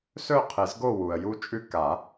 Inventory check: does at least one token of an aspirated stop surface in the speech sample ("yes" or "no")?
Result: yes